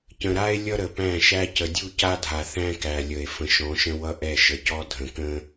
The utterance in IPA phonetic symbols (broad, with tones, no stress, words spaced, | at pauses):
cə̃˨ɾa˦e̯ lʲʌ˦ɾə˨pæ̃˦˨ʃæ˦ cə˨dʲu˦ca˦dʱa˨ θæ̃˦kæ˨lʲə˨e̯ fə̃˨ʃɔ̃˨˦ʃə̃˦wʌ˦ ʔɛ˦˨ʃə˨cɔ˦ dʱə̃˨kə̃˦